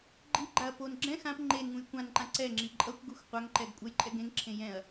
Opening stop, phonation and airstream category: click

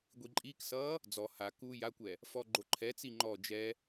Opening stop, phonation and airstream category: plain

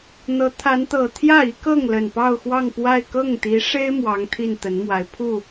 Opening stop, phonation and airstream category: aspirated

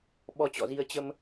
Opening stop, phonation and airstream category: implosive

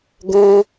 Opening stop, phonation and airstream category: plain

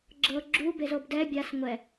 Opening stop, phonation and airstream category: click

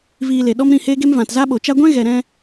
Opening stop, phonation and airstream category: implosive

